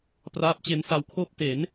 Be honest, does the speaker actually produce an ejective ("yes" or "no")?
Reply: no